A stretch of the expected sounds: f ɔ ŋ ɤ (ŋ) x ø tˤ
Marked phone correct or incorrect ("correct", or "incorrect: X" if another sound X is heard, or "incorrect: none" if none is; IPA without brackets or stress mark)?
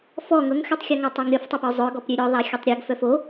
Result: correct